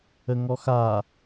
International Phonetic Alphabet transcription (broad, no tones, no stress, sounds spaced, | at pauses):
ə ŋ ɔ x a